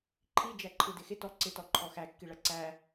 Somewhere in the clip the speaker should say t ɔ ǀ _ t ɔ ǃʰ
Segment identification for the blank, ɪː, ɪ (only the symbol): ɪ